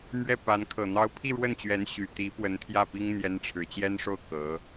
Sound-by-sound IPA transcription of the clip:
m ɥ ɛ˥˩ p a˧˥ n kʰ ɤ˨˩ n̪ ɑ˥ ʊ̯ pʰ i˥˧ ɻ w ə˥˩ n t͡ɕ ɥ ɛ˧˥ n ɕ y˨˩ t̪ i˧˥ p w ə˧˥ n t̪ʰ j ä˥˩ p i˥ ŋ n̪ j ɛ˥ n ʈ͡ʂʰ ɻ̩˧˥ t͡ɕ j ɛ˥ n ʂ o˥˩ ʊ̯ k ɤ˧˥

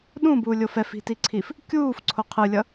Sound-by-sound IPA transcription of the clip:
ɗ ũ b uː lʲ o f ɛ f i̤ t i ǀʰ i f | kʲ uː f ǀʰ o qʰ ɯ lʲ ʌ

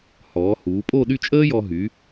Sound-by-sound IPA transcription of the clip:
h ɔː˩˧ h uː˩˧ pʼ o˥˧ ɗ y˥˧ t͡ʃʼ əː˥ j ɔ˧ ɦ y˩˧

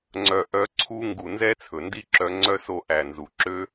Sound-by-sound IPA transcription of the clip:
ŋ͡ǀ œ˨ ʔ œ˨˦ ǀʰ u˧ ŋ ɡ u˨ n z ɛ˦ t͡sʰ ɵ˨ n d i˦ ǁ œ˧ ŋ͡ǀ œ˦ s o˦˨ ʔ æ˨ n z u˨ ǁ ø˦

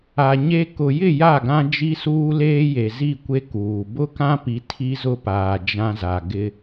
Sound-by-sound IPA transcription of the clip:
a˨ ɲ e˦ k ʊ˨ j ɪ˦˨ j a˦˨ ɡ ã˦ d͡ʒ i˦ s uː˦ l eː˦ j e˨ z i˦˨ kʷ e˦ k uː˨ b ʊ˦ k ã˦ p i˨ tʰ i˦ z ʊ˦ p aː˨ d͡ʒ ã˦ z a˨ ɡ ɪ˦

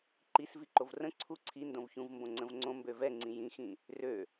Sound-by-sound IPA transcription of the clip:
ǃ i s v i ǃ o v r ə̃ ǀʰ u ǀʰ i n d õ v ç ũ v m b õ ŋ͡ǀ ə̃ v ŋ͡ǀ õ m b ø v ɛ ŋ͡ǀ ĩ j ĩ x ĩ | r ø

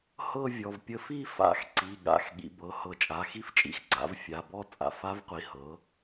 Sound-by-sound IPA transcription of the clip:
h ɤ˥˧ vʲ ɔ˩˧˩ v pʲ ə˧˥ f i˥˧ f a̰˧˩˧ x ǀ i˩˧˩ ɠ a̰˩˧˩ x ɠ ḭ˩˧ b ɤ˩˧˩ h ɤ˧˩˧ t͡ʃʼ a˩˧˩ x i˥˧ f t͡ʃʼ ḭ˩˧˩ x ɡ͡ǀ a̰˩˥ v fʲ a˩˧˩ b ɔ˥˧ t͡sʼ a̰˩˧ f a˧˥ v qʷ i˩˧ h ɤ˩˥

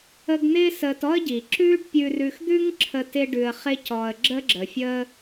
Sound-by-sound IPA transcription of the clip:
ə˦ ɡ n̪ ɪː˥ s əː˨ t ɔ˥ ə̯ ɟ i˩ ǁ ʉː˦ ɖ pʲ ʉ˨ r ʉ˨ x d̪ ʉ˦ ŋ ǁʰ ə˨ t ɪ˦ ɖ ʉ˨ ə̯ χ ɪ˦ c ɔ˩ ə̯ ɡ͡ǁ ə˥ ɡ͡ǁ ə˩ fʲ əː˥

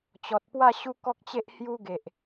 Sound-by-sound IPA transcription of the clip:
t͡ɕ ɔ˨ t̚ p w a˥˧ ɕ u˦ k ɔ˦ k̚ t͡ɕ e˦ ʔ h j u˦ ɡ e˨ ʔ

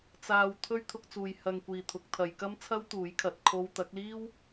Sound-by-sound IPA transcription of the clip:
t͡s aː˧ w t̪ʰ ɵ˥ ɥ t̪ʰ ʊ˧ k̚ t͡s uː˨ j h ɐ˧ ŋ kʷ iː˨ t̪ʰ ʊ˨˥ k̚ t̪ʰ ɐ˨˧ j k ɐ˥ m t͡sʰ ɐ˥ w t̪ uː˨˥ j kʰ ɐ˨ t̚ kʰ o˥ w t̪ ɐ˨˥ k̚ l iː˥ w

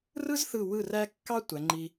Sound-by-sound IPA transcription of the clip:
r ɯ˥ z θ ɯ˧˩ w ɯ˧˩ r æ˧ kː ɑ˥ tʷ æ˩˧ ŋ͡ǃ i˧

